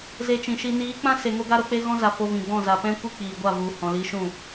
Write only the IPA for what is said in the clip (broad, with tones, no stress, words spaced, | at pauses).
ze˧t͡ʃĩ˨ʃi˧ niː˨˦k͡pã˦se˨ ŋo˦ɡa˦ɾo˦k͡pe˦ ɣɔ̃˦za˨ fo˧vĩ˨ɡ͡bɔ̃˦˨ za˨pɛ̃˦ kʷi˦k͡piː˨ɡʷa˦˨ vu˨hɔ̃˨ li˧ʃũ˦˨